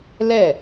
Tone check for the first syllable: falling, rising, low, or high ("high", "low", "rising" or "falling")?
falling